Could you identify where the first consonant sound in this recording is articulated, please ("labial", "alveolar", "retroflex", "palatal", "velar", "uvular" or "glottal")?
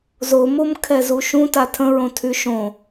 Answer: alveolar